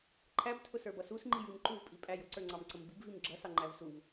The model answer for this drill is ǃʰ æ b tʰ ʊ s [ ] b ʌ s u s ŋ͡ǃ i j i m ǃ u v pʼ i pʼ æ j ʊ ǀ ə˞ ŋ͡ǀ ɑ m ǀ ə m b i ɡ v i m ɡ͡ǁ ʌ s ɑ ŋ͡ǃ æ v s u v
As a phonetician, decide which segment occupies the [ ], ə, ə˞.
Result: ə˞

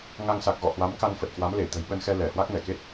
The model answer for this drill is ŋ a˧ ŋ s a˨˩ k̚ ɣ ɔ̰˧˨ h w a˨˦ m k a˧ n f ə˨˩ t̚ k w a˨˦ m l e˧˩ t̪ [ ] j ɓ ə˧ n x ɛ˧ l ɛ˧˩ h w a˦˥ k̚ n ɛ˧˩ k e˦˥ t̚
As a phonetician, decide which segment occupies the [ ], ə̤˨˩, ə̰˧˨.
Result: ə̤˨˩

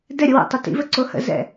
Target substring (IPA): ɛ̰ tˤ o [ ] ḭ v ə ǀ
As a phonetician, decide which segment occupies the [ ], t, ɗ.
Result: t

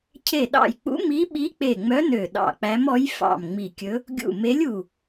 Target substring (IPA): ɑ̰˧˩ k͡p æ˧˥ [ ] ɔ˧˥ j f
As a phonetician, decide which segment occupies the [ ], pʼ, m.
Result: m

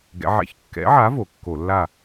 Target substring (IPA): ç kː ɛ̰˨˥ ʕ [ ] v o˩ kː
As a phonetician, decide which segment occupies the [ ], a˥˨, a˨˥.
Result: a˨˥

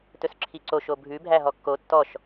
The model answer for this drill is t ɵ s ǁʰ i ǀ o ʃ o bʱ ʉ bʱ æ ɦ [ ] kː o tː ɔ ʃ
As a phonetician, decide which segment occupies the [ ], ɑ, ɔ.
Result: ɔ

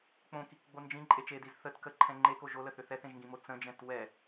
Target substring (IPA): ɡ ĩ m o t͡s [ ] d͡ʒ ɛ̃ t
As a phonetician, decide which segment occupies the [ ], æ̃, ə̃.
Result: ə̃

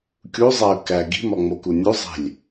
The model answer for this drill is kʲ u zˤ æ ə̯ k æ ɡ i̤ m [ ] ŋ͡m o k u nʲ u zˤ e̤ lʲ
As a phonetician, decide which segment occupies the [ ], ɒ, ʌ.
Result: ɒ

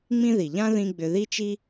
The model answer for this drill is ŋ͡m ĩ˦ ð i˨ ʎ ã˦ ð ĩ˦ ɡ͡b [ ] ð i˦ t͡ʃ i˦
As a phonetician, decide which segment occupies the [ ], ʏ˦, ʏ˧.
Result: ʏ˧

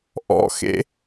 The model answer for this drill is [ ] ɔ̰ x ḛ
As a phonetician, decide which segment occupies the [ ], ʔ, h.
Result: ʔ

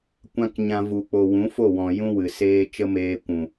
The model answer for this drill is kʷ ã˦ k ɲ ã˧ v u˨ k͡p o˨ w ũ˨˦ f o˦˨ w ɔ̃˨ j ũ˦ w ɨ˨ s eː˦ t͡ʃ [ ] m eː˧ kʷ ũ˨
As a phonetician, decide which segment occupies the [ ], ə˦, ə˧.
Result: ə˦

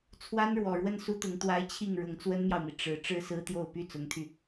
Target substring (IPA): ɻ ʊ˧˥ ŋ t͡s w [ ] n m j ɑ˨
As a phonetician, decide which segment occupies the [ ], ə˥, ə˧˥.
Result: ə˥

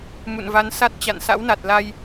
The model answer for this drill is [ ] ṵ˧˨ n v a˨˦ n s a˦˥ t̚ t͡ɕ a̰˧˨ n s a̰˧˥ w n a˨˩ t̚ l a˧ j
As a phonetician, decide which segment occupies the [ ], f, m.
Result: m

